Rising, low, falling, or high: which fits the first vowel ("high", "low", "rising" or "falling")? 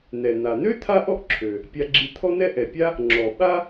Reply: low